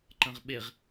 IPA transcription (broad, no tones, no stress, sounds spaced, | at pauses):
ǃ ɐ̃ ʁ ɓ e ʁ